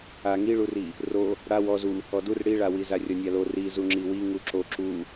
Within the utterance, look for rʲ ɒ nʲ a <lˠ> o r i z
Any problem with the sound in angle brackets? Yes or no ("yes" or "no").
yes